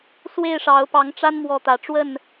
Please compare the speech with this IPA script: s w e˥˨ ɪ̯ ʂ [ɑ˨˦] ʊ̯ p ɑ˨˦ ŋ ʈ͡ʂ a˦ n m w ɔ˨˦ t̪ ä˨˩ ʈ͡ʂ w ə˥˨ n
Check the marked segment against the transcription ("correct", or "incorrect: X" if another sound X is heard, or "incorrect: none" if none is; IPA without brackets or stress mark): correct